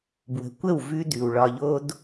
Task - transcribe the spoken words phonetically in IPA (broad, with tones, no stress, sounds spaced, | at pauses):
b w ə̤˨ kʷ ə˦˨ w v ʉ˦ d ʉ˨ w ɭ ɒ˧ ʎ o˦ d